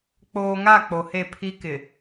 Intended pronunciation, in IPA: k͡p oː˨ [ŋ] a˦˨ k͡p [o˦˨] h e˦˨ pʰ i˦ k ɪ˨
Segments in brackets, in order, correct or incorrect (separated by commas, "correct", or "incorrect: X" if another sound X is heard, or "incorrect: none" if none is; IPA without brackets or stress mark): correct, incorrect: o˨